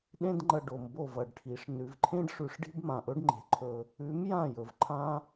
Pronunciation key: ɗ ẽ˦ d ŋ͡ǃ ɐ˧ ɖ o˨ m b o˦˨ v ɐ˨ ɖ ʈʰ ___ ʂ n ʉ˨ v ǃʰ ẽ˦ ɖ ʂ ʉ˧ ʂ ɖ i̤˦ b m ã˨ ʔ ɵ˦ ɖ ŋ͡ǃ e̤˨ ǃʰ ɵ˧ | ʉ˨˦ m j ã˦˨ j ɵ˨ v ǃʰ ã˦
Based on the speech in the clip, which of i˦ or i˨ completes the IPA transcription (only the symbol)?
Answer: i˨